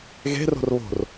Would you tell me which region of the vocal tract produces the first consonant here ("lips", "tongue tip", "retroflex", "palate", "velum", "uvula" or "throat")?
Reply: velum